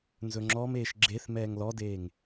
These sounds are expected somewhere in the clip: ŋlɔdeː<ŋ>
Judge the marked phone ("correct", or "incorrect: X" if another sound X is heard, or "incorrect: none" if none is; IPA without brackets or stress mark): correct